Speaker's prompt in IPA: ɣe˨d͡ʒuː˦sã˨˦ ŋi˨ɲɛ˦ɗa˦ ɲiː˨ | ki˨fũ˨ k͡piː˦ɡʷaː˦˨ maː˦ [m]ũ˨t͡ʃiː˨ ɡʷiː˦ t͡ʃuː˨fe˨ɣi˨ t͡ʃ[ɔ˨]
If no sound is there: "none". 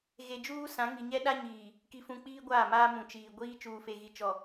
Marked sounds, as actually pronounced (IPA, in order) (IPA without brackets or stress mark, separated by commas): m, ɔ˨